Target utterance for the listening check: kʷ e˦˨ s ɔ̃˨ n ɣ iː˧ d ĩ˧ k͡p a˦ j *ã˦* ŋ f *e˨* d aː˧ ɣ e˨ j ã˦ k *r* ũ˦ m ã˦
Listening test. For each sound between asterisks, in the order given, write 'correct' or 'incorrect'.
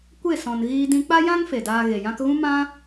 correct, correct, incorrect

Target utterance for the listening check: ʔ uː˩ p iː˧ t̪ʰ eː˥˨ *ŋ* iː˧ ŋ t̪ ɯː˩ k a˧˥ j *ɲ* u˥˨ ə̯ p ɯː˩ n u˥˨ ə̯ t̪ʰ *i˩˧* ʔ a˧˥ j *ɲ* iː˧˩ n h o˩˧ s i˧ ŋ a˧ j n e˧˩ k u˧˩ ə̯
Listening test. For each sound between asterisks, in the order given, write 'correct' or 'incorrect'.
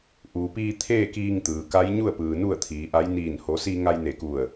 incorrect, correct, incorrect, incorrect

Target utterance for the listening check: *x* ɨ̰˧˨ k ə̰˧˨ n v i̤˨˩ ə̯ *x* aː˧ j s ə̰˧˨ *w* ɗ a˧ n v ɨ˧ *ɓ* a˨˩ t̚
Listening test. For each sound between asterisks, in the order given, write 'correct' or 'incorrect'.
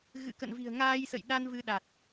incorrect, incorrect, incorrect, incorrect

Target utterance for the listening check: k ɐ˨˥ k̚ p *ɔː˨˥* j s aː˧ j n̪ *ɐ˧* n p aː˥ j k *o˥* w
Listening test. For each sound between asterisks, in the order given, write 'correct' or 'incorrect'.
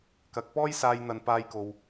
incorrect, correct, incorrect

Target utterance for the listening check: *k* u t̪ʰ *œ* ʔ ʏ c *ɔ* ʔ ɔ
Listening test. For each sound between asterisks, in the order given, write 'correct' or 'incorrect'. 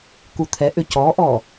correct, incorrect, correct

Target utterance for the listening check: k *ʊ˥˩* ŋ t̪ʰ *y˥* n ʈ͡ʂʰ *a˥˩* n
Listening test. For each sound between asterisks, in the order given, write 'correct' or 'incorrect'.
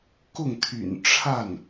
correct, incorrect, correct

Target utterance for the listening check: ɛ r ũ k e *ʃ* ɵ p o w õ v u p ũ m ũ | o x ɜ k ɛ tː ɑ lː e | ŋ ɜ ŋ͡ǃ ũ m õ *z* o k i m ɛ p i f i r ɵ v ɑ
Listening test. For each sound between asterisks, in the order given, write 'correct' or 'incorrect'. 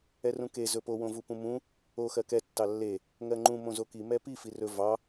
incorrect, correct

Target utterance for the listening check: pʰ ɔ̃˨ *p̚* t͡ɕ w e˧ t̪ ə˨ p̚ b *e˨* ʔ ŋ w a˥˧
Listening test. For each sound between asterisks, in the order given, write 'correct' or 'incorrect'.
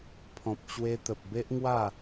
correct, incorrect

